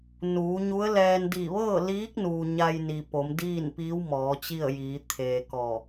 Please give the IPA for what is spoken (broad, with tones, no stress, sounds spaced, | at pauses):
n uː˩˧ ɲ u˧˥ ə̯ l ɛː˧ n d i˧˩ ʋ ɤː˥˨ l iː˧˥ k̚ n uː˩ ɲ a˧ j n i˩ p o˩˧ m d iː˥˨ n p iː˧˥ w m ɔː˩˧ t͡ɕ i˥˨ ə̯ j iː˩˧ t̪ʰ eː˩ k ɔː˧˩